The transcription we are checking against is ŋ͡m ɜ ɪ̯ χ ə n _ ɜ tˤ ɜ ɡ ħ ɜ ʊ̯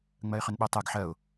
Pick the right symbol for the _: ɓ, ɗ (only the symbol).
ɓ